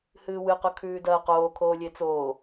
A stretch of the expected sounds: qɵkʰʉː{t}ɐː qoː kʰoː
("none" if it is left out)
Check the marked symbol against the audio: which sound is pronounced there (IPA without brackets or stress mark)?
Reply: d